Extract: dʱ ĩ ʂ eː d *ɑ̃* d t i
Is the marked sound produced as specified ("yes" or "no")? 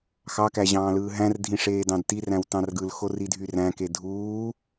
yes